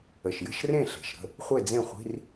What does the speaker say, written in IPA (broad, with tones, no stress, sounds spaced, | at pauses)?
ə˨˩ ʃ j ə̤˥˨ ʃ r ẽ˥˨ ɬ e̤˨˩ ʃ ɾ ə̤˥˨ | χʷ e˥˨ d͡z ẽ˥˨ χʷ i̤˧˥˧ r